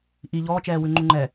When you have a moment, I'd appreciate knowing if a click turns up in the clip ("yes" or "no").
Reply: yes